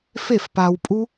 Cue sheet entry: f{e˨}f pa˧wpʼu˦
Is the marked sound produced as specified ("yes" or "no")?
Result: no